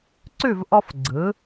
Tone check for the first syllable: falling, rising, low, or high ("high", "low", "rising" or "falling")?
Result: falling